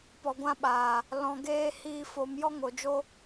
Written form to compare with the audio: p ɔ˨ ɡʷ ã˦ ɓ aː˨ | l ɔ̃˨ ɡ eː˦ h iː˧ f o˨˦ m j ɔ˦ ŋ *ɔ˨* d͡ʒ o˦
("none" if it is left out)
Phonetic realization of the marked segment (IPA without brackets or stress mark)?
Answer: o˨